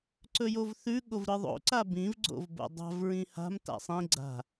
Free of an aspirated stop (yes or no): yes